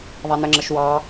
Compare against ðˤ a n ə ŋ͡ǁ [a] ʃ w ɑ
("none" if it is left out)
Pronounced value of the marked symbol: ə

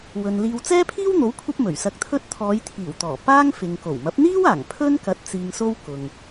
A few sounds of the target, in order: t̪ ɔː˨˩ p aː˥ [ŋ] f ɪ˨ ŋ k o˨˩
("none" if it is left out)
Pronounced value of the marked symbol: ŋ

